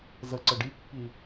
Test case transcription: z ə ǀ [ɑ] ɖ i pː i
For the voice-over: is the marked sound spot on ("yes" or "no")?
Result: no